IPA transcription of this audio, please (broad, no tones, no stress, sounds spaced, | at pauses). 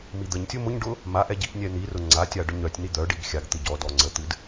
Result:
m i d̪ ə ɲ tʲ ʊ m ʊ ɲ ɖ ʊ | m a ʔ ɛ ɟ i ʔ nʲ ɛ n̪ i r ʊ ŋ͡ǀ a tʲ a ɖ ʊ ɲ œ tʲ n̪ i d̪ œ ɖ i ɡ xʲ a ɡ t̪ ɨ ɟ ɔ d ɔ ŋ͡ǀ ə t̪ ɨ d